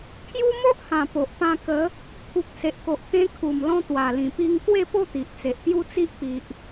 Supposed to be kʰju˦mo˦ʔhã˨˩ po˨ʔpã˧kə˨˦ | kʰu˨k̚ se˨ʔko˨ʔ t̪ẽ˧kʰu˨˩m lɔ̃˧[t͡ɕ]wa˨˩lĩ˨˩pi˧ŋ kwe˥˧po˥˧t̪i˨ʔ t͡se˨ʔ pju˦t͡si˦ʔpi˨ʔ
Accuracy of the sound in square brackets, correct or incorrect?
incorrect